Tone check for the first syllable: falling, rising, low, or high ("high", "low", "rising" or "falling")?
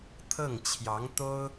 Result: falling